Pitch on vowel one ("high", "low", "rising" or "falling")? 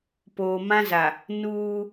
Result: low